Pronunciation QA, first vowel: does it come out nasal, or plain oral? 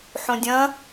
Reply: nasal